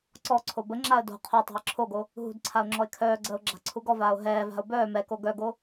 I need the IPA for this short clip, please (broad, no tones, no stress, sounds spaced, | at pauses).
ǀ ɔ ǀʰ o b ə ŋ͡ǁ a ə̯ d o̤ qʰ o tˤ a̤ ə̯ ǁʰ o ɡ o | ɦ ṳ d ǀʰ a ʊ̯ ŋ͡ǁ ɔ ɪ̯ kʰ œː ɡ͡ǀ əː ʊ̯ ɡ͡ǁ a̤ ǀʰ u ɡ ɔ v aː ʊ̯ ɦ ɛː v a̤ ʊ̯ b œː m ɛ k o ɡ œ ɡ o